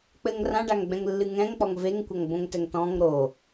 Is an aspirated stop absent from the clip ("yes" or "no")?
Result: yes